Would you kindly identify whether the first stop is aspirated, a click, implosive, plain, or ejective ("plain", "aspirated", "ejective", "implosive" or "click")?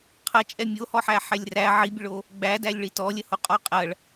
aspirated